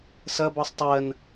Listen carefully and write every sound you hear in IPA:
s ɐ b ɔ sˤ tˤ ɜ n

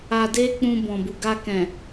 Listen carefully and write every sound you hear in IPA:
a˧ d e˦ k͡p ũ˧ b ɔ̃˨ b u˨ ɡ a˧ k ɛ̃˨

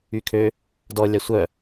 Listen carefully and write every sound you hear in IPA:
y kʰ ø | d ɔ lʲ ɑ sʷ œ

